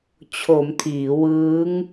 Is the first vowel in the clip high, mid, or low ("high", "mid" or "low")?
mid